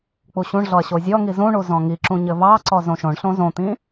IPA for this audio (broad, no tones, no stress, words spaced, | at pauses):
k͡puɕũɳɮɔɐ̯ ɕozʲɔŋi zũɳu zɔ̃ŋiǁũ ɲɘvɑǀɔ zõʃõɳɬõ zõt̪ĩ